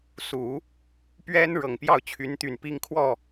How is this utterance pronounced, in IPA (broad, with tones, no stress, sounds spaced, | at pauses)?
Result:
s u˨˩˦ | p ɥ ɛ˥ n ɻ ɤ˨˩ ŋ p j ɑ˥˩ ʊ̯ t͡ɕʰ y˧˥ n t̪ y˨˩ n p i˥ ŋ kʰ w ɔ˥˩